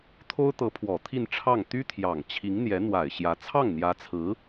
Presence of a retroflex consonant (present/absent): present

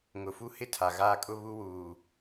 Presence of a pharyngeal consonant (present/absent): absent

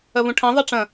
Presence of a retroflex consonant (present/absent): present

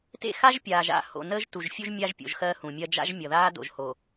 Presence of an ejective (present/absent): absent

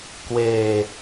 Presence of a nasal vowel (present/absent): absent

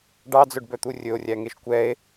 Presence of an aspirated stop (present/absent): absent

